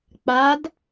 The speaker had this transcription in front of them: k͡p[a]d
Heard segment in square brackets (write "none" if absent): a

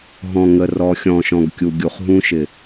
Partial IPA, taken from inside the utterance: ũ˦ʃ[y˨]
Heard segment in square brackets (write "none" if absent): ɪ˨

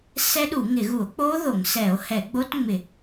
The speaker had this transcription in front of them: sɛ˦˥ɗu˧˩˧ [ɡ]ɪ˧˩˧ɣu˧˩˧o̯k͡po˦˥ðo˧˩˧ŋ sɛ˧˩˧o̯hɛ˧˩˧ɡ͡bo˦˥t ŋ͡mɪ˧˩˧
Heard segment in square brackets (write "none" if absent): ŋ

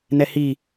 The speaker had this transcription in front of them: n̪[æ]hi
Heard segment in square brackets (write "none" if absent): ɛ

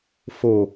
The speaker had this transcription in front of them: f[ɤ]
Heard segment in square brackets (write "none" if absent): o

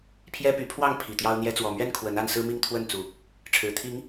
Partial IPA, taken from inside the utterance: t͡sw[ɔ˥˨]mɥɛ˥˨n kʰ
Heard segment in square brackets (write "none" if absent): ɔ˨˩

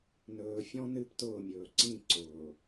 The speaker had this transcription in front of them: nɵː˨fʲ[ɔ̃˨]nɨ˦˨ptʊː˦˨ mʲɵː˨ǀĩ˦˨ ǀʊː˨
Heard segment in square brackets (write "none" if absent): ɔ̃˦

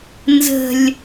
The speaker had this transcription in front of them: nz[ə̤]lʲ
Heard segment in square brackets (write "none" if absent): ə̤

